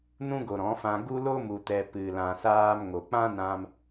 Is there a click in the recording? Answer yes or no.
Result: no